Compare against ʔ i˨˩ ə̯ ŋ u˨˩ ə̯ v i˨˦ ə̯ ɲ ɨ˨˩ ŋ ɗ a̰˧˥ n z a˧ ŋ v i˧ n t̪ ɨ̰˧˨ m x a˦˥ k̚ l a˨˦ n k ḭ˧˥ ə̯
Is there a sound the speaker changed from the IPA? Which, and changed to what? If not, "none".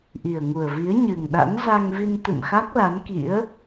none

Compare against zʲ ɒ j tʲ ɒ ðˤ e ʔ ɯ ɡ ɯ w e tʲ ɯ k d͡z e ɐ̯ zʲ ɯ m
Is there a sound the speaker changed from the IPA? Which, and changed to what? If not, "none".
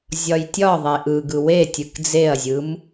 none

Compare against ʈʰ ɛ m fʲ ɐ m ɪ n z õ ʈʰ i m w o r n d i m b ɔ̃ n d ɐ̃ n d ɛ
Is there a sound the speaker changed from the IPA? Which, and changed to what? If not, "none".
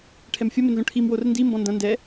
none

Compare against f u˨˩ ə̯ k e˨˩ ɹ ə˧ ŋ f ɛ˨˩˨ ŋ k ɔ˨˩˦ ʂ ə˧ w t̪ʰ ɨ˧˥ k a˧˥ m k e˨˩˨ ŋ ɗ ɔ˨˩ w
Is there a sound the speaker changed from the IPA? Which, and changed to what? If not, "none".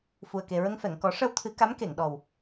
none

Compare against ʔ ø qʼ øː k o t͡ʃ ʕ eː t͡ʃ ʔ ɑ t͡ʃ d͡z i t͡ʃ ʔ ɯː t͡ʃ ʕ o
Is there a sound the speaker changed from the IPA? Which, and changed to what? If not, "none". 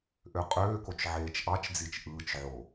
none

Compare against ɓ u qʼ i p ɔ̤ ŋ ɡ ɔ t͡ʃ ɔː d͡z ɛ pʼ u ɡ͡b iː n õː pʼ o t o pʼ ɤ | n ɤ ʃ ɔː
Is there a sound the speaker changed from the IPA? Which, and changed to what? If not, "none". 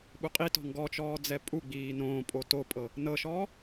p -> t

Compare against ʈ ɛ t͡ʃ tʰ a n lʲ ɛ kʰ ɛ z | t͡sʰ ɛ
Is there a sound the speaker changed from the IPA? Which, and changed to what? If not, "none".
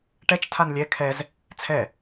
none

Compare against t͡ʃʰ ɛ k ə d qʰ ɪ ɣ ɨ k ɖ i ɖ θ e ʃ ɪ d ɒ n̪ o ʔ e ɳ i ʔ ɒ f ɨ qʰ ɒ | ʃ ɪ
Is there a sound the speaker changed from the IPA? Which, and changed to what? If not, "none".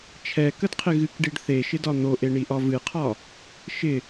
f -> v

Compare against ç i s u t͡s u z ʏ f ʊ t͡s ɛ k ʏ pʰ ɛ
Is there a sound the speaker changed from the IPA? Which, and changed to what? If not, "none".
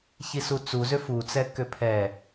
ʊ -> u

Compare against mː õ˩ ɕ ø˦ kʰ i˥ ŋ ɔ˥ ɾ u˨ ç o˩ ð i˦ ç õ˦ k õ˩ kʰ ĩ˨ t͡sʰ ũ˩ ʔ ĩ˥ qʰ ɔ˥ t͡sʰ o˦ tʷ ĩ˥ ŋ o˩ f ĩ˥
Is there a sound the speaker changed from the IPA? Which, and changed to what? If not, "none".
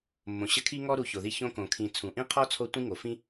ø˦ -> ə˦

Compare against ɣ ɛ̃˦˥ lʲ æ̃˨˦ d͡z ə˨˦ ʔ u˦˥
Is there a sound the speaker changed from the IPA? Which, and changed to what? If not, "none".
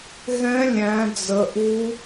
none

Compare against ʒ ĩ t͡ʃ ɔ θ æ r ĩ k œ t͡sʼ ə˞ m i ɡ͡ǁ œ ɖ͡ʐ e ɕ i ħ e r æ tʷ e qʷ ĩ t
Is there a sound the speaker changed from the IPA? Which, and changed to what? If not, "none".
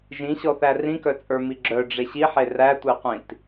t͡ʃ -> ɕ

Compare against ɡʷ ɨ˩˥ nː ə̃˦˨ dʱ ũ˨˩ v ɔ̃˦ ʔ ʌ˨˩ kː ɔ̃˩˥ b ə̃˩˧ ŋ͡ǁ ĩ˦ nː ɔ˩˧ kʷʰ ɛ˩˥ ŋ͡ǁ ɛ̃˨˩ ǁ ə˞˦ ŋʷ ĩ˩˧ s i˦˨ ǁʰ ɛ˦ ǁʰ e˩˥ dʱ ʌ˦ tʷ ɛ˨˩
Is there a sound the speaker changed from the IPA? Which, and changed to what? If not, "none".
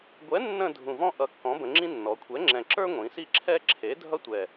ɨ˩˥ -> ɛ˩˥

